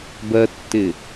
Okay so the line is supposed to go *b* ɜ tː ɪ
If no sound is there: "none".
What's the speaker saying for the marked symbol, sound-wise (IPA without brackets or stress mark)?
b